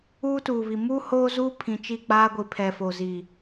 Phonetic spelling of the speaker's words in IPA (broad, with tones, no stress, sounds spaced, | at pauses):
uː˦ t uː˨ β i˨ m uː˦ h oː˦ z uː˦ pʰ ĩ˨ t͡ʃ i˦˨ k͡p aː˦ ɡʷ i˨ pʰ ɛ˨ f o˨ z i˨